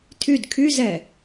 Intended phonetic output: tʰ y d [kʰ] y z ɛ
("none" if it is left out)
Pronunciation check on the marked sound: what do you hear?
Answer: kʰ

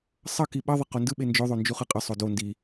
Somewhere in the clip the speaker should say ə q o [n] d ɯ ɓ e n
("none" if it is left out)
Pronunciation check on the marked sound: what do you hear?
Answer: n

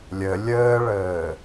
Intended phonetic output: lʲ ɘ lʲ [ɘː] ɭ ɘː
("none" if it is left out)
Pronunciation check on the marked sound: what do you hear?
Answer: ɘː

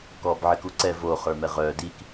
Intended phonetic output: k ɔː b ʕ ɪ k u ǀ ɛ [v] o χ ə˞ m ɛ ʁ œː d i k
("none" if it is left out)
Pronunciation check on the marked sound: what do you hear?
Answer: v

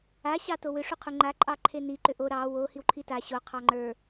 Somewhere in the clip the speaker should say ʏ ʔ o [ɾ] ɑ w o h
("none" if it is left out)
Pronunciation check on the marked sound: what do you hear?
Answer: ɾ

